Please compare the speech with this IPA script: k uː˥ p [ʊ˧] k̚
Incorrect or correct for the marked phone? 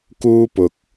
correct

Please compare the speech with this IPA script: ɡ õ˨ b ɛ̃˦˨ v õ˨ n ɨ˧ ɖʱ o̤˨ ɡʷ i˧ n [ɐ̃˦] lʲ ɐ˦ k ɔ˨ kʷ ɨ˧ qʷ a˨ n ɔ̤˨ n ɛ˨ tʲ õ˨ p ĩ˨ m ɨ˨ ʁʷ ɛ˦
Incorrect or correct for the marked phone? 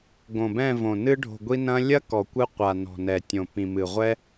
correct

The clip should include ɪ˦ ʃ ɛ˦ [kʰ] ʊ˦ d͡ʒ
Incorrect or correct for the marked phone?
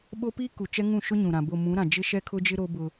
correct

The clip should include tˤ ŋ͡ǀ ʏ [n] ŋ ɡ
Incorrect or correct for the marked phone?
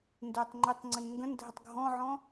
correct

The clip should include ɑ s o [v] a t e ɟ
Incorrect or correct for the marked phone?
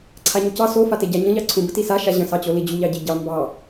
incorrect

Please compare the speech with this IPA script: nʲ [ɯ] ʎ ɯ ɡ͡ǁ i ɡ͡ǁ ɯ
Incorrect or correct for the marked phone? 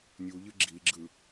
incorrect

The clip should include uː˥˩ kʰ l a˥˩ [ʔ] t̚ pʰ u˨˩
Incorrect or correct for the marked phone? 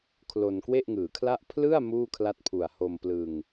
incorrect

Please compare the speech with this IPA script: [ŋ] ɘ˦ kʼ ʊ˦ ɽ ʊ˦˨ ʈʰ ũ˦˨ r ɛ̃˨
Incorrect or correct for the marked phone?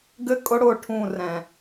incorrect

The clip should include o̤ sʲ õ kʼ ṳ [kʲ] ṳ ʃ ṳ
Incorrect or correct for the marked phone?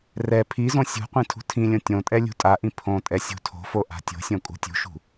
incorrect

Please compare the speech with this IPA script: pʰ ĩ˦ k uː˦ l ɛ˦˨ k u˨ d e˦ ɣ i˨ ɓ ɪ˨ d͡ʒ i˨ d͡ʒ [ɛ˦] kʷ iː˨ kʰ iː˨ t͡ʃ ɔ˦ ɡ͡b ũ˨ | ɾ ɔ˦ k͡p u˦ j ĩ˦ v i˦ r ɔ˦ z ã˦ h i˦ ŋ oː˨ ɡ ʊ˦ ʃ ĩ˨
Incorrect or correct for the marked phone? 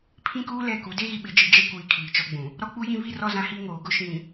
correct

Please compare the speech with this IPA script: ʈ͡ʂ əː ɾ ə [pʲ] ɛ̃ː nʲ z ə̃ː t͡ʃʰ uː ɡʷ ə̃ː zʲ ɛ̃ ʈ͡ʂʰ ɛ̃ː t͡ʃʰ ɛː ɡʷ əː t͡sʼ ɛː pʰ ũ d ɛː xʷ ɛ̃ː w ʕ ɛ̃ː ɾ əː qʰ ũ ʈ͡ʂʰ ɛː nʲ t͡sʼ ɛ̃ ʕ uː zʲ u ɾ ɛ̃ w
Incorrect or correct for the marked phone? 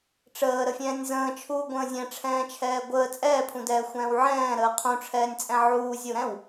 incorrect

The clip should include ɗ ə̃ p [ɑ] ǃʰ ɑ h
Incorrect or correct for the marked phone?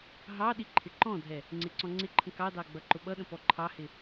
incorrect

